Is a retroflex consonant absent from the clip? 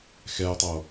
yes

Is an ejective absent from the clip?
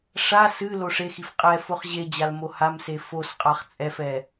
no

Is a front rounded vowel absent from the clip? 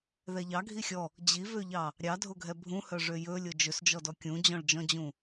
no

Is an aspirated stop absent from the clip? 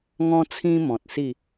no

